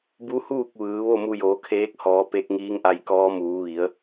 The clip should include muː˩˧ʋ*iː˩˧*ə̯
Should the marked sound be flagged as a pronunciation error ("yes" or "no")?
yes